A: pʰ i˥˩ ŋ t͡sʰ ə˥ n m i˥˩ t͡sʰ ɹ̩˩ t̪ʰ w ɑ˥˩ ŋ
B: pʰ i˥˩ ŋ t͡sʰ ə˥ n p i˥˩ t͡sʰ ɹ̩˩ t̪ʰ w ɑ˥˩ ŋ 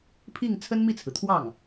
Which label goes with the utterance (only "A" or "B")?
A